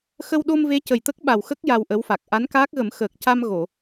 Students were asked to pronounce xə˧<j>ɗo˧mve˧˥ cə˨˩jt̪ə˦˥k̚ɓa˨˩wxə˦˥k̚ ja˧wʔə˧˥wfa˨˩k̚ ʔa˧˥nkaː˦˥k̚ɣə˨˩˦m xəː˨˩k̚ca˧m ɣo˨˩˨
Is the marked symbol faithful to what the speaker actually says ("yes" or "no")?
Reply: no